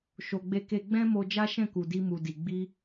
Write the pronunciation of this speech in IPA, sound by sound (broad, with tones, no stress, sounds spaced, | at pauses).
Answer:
ʃ o˧ ɡ͡b e˦ k e˦ ɡ͡b ɛ̃˦ m o˧ d͡ʒ a˦ ʃ ɛ̃˦˨ k u˨ d i˧ m u˨ d i˨ ɡ͡b i˧